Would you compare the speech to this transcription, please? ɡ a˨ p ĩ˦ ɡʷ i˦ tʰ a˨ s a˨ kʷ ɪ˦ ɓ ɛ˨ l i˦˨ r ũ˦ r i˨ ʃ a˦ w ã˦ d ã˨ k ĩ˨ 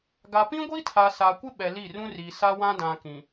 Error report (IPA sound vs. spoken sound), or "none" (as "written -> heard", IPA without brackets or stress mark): ʃ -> s